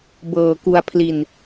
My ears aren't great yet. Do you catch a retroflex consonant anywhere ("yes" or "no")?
no